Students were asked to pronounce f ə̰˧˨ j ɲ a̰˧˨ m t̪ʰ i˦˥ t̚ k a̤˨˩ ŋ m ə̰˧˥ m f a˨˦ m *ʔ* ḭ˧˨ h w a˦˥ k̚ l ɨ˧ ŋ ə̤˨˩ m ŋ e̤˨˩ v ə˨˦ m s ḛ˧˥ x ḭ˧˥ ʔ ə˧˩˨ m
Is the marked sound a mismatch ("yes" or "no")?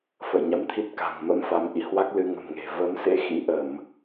no